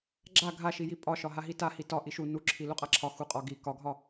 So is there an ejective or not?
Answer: yes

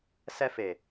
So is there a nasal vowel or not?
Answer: no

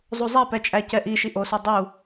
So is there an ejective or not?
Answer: yes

